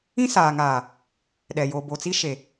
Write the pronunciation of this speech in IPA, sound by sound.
ĩ˦ s aː˨ ŋ aː˨ | ɗ ɛ˨ j o˨ b o˨ t͡s i˦ ʃ e˨

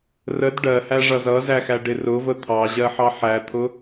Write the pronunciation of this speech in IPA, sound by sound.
r ə d ɖ ɜ h æ ʐ ʌ z ʌ z æ x æ ɖ ɪ r ʊ v ə t̪ʰ ɑ ʑ ɜ ħ ɑ ħ æ t̪ʰ ʊ

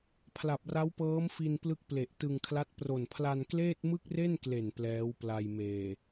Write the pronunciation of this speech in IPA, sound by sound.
pʰ l a˨˩ p̚ r a˦˥ w p ɤː˦˥ m f i˧ n p l ɯ˦˥ k̚ p l e˨˩ ʔ t ɯ˧ ŋ kʰ l a˦˥ t̚ p r o˨˩ n pʰ l a˧ n k l eː˥˩ t̚ m ɯ˥˩ k̚ r e˥˩ n k l e˨˩ n p l ɛː˦˥ w p l a˧ j m eː˨˩

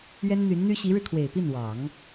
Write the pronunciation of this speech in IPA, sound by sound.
ɥ ɛ˥ n n̪ y˧˥ n n̪ y˥ ɕ i˧˥ ɻ ɻ̩˧ kʰ w e˨˩ ɪ̯ p i˥˩ n w ɑ˨˩˦ ŋ

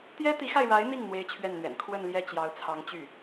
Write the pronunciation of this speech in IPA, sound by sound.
t̪ j ɛ˥ t̪ i˧˥ x a˧ ɪ̯ ɻ a˧˥ ɪ̯ n̪ i˥˩ ŋ n̪ w e˥ ɪ̯ t͡ɕʰ ɥ ɛ˥˩ n n̪ ɥ ɛ̰˨˩ n kʰ w ə˥˧ n l j ɛ˥˩ t͡ɕ j ɑ˧˥ ʊ̯ t͡sʰ ɑ˧˥ ŋ t͡ɕ y˥˩

